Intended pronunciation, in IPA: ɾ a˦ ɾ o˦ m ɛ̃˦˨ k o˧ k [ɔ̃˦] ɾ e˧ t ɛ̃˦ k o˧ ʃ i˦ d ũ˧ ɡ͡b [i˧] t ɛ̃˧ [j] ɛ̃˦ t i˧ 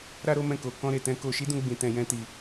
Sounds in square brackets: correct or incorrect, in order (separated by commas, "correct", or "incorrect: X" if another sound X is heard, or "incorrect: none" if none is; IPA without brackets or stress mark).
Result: correct, incorrect: ĩ˧, correct